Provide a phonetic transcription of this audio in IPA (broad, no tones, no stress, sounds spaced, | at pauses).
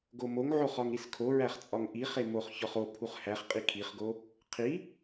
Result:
ɡ o m o ŋ ʕ o χ ɒ ŋ ɾ i s kʰ o ɹ æ χ t͡sʼ ɒ ŋ ʔ i χ e m o χ ç ɒ χ o pʰ u χ h æ χ qʼ i kʰ i χ ɡ o | qʰ i